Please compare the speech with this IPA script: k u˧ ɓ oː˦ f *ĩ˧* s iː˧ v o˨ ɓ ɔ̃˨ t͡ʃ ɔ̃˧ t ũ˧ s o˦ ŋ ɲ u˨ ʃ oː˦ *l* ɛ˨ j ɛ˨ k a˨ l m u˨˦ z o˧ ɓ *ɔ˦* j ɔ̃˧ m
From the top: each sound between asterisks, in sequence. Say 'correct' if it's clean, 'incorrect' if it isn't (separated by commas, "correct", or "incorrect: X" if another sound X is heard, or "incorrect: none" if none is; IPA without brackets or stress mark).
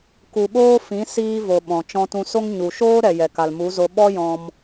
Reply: incorrect: ĩ˨˦, incorrect: ɾ, correct